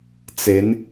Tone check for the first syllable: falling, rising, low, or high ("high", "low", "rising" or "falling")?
rising